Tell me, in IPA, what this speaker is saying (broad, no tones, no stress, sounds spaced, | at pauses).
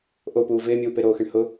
ʔ o p uː v ɪː mʲ uː p e ɾ oː x ɪ ɳ h ʊ